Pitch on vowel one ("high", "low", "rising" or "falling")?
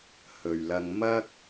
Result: low